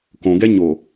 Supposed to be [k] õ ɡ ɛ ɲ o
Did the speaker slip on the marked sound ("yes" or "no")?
no